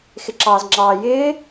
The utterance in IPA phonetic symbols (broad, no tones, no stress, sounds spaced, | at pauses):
x ɪ ǁ ɑː z ŋ͡ǁ ɑː j ɪː